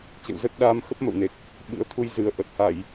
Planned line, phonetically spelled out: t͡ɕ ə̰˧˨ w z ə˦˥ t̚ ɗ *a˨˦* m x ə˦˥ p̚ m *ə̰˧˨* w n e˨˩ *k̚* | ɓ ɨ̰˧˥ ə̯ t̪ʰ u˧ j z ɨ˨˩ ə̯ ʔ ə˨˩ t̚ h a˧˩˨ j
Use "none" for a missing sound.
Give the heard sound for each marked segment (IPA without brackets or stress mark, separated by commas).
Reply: a˧, ə̰˧˨, k̚